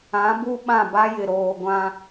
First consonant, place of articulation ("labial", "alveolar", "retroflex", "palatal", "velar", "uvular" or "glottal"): labial